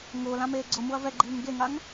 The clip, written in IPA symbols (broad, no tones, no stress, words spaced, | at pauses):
ŋʊːlãmeː ɡ͡ǀʊmuɐ̯ vɛɡ͡ǃiːŋ ɡeŋaŋ